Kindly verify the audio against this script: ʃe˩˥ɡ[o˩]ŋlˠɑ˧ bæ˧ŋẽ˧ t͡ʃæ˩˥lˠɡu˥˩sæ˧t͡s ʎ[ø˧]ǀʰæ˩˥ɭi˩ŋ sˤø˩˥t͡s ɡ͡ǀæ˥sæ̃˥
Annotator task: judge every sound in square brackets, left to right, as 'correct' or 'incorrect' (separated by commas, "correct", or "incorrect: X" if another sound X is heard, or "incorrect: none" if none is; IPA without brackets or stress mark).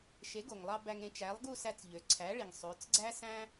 correct, incorrect: ø˩